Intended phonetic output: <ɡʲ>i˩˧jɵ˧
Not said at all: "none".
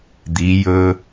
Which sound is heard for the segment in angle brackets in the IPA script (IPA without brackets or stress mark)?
d̪